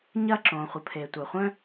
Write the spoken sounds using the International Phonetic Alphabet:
ɲɐː˥ǁõː˩χʷə˩ pʰe˩tʷœ˩χʷœ̃˥

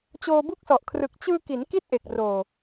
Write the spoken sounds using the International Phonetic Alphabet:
t͡ɕoː˧bu˦˥k̚sɔ˨˩ʔkʰrɯ˨˩k̚ t͡ɕɯː˧ki˩˦n ki˥˩t̚ʔe˨˩k̚roː˨˩

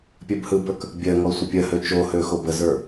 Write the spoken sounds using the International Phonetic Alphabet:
pʲɜbhɯbə˞k | bʲɜŋɔ sʷəpʲɜhø t͡ʃohø xobəzə˞

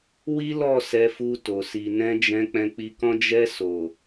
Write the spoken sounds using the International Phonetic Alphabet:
wi˦lɔ˦˨ sɛ˧fu˧to˨ si˨nɛ̃˧d͡ʒɛ̃˧ k͡pɛ̃˧k͡pi˧kɔ̃˦ d͡ʒɛ˧so˨

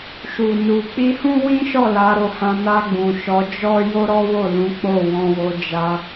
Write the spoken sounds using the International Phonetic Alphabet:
ʃu˨nu˨ k͡pi˧hũ˦wĩ˦ʃɔ˦˨ la˨˦ɾo˧hã˧ na˧ɡ͡bũ˨ ʃɔ˨˦d͡ʒɔ˦ jo˦ɾɔ˦wo˦˨lũ˨˦ k͡po˦˨wɔ̃˧wo˧ d͡ʒa˧

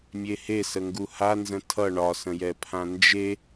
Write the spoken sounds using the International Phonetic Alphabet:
mʲehesə ŋɡuhanzə̃ tʰʌ ɳɒsə̃jɛ pʰãnd͡ʒe

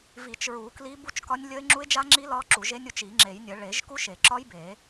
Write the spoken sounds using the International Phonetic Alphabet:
vi˨˩˦t͡ʃɹu˨˩˦ kli˦˥ bu˦˥t͡ʃkɒ˦˥nʲ lʲə˦˥ɪ̯ ŋ͡ǁu˦˥ɪ̯d͡ʒa˦˥ŋ͡ǁi˦˥ lɒ˦˥ǁu˨˩˦ʒe˦˥nʲ u˨˩˦t͡ʃi˨˩˦ŋ͡ǁe˨˩˦jnʲə˨˩˦ ɭe˨˩˦ʒ ku˦˥ʃe˨˩˦ǁɒ˦˥j be˨˩˦

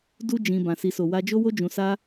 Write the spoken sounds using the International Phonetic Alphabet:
du˦ d͡ʒĩ˧ bã˨si˨so˨ wa˧d͡ʒo˦wo˦ d͡ʒũ˧sa˦

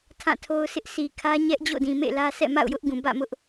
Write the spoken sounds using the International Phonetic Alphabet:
tʰã˦˨tʰo˦ʊ̯sʰɪ˦ʔ sʰi˨ kʰä˦ɲɛ˦ʔ d͡ʑo̰˦˨dĩ˨ mḛ˦˨lä˦sɛ̰˦˨ ma̰˦˨ʊ̯jʊ˦ʔɡũ˨ bä̰˦˨mʊ˦ʔ

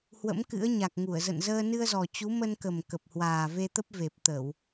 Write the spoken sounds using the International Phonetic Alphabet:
hwə̰˧˥mkɨ̰˧˥ə̯ ɲa˨˩k̚ŋu˧˩ə̯zə̰˧˨nzəː˧ nɨ˧ə̯zɔ˨˩ t͡ɕu˨˦mə˧nkə˨˩m kə˨˩p̚hwaː˨˩ve˧t̪ə˦˥p̚ ve˨˩p̚t̪ə˧˩˨w

